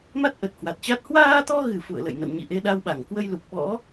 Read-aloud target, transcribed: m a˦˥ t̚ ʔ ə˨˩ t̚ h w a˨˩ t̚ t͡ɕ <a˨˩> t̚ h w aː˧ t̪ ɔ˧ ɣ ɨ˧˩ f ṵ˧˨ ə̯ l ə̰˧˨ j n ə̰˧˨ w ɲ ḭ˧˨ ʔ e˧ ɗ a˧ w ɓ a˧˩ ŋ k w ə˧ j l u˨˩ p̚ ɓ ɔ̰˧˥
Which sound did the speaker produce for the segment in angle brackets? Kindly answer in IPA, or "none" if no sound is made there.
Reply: a˦˥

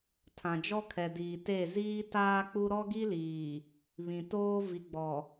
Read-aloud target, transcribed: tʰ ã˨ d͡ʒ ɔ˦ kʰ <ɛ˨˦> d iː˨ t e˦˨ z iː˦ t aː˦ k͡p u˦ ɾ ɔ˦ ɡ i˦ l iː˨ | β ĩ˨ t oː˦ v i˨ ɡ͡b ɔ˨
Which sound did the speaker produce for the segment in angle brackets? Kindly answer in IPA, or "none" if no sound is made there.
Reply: ɛ˨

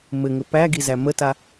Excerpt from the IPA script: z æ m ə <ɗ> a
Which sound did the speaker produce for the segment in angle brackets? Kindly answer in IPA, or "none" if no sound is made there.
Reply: t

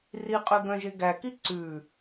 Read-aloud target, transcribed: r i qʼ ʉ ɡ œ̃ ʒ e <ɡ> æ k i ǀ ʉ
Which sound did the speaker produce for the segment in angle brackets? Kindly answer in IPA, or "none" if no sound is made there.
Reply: ɡ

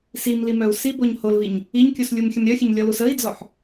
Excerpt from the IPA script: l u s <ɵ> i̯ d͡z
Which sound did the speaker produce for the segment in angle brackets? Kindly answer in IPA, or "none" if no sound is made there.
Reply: ə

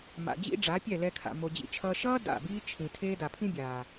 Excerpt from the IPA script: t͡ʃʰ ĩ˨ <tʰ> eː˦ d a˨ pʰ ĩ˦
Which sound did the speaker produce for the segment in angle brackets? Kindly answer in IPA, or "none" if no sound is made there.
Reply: tʰ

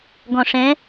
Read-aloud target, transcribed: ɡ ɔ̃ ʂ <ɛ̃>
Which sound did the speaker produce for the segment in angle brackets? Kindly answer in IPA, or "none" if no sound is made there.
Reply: ɛ̃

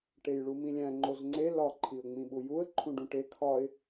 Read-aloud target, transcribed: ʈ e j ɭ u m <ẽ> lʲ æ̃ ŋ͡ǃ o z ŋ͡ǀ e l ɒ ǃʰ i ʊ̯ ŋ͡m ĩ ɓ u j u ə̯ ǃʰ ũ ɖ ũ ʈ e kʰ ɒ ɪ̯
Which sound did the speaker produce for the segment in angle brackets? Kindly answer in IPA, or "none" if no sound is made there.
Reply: ĩ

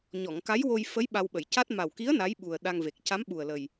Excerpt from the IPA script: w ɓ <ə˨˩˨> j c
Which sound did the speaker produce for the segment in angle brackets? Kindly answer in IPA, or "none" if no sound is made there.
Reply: ə˨˩˨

